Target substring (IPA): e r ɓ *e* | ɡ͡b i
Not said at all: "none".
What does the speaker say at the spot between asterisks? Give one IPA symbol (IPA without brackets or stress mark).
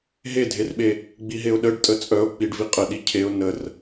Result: e